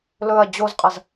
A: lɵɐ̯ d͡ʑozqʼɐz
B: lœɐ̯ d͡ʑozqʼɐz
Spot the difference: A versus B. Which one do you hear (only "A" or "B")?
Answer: A